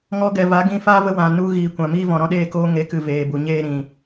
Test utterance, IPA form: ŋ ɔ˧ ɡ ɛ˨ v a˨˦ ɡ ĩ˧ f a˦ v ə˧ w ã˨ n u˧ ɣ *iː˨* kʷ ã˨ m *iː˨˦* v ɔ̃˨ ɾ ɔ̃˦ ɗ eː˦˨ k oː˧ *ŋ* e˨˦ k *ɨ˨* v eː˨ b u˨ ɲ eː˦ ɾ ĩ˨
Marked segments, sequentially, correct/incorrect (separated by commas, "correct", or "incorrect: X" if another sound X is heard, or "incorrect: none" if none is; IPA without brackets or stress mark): correct, incorrect: iː˦, correct, correct